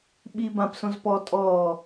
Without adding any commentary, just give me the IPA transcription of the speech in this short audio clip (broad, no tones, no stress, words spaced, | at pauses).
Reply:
ɓi bãpsõz pɔ tʼɔː